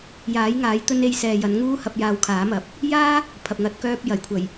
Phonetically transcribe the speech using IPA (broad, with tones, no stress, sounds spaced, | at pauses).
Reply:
j aː˨˥ j ŋ aː˨˥ j t̪ ɵ˧ n e˧ j s ɛː˨ j ɐ˨˥ n ŋ uː˥ h ɐ˧ p̚ j aː˧ w kʰ aː˨˥ m ɐ˨˥ p̚ | j aː˥ | pʰ ɐ˨ p̚ ŋ ɐ˨˥ t̚ k œː˧ p̚ j ɐ˨˩ j kʷʰ ɐ˨˩ j